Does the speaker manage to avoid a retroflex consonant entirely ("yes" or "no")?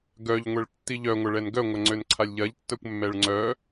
no